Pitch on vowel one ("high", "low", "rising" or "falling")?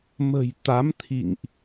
low